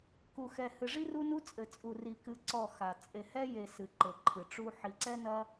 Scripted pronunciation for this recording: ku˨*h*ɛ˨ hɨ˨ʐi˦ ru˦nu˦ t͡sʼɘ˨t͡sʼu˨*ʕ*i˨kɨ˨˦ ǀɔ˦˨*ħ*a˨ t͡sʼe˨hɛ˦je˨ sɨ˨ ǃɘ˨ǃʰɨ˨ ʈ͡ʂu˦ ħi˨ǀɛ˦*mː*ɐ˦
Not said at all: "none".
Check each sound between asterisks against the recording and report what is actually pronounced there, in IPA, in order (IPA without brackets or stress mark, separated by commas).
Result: x, r, x, n